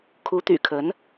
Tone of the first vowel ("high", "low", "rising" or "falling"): rising